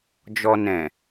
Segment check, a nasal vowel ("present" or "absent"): present